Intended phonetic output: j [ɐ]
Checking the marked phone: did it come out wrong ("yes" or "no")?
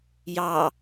yes